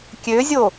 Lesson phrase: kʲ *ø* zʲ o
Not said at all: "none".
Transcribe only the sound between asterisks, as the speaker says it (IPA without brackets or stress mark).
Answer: ø